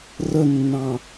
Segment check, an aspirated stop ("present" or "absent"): absent